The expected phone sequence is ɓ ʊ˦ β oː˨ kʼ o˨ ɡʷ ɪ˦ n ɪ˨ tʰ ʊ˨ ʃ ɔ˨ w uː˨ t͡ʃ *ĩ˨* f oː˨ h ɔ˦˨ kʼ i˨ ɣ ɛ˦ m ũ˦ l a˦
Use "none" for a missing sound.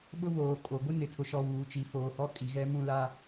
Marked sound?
i˨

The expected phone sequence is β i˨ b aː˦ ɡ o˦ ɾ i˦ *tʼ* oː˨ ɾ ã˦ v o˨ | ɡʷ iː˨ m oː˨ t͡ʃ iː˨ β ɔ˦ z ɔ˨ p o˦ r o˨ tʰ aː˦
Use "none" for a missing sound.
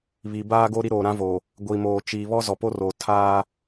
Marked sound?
ɾ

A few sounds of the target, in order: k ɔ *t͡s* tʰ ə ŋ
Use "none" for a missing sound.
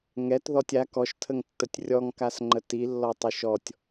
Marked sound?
ʃ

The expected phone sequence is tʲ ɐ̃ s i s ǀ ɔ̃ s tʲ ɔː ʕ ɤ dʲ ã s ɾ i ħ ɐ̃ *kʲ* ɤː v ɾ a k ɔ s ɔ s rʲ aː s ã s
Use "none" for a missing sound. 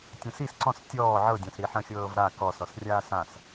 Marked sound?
xʲ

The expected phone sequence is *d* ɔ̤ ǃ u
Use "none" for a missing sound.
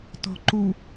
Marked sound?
t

